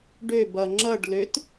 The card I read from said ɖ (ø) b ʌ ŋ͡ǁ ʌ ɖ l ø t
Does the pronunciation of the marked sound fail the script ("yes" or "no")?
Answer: no